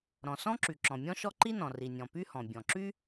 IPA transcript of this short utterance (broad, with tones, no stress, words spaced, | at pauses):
ɾɔ̃˩sɔ̃˥ǁy˩ ǁɔ̃˩mʲɔ̃˥ʃɔ˥ ǃi˥nɔ̃˩ri˩nʲɔ̃˩ py˥hɔ̃˩ bʲɔ̃˩ǁy˥